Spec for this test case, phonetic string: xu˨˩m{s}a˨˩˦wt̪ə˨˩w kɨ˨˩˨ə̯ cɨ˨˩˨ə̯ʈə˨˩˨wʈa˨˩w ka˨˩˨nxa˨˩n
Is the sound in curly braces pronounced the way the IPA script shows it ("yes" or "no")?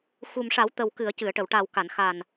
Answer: no